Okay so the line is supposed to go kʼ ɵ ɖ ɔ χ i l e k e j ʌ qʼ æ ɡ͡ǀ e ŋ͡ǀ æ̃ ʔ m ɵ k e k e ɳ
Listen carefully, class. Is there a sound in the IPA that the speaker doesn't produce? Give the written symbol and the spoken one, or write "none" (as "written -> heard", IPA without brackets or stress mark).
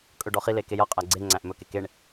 none